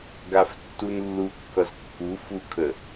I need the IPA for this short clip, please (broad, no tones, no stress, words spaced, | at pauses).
ɡaftːunlːukːʌz kːu fukʰə